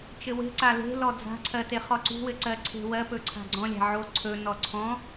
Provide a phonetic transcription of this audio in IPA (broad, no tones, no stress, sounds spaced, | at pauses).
t͡ʃ ɘ w e̤ ǀ a l e̤ l ɔ d͡z a̤ ǀʰ ɜ t e χ ɔ ǀ ṳ w ɘ ǀ ɜ ǀʰ e̤ w ɜ p ɵ ǀʰ a̤ ɡ͡ǀ ɔ̃ lʲ a̤ ʕ o ǀʰ ɵ n ɔ ǀʰ ɔ̃